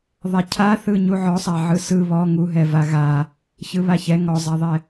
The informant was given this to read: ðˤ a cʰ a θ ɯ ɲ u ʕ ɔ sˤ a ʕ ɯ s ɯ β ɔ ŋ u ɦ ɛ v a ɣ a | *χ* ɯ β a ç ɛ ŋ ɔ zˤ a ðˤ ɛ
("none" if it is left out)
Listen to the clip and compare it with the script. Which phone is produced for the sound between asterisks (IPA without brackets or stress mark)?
ç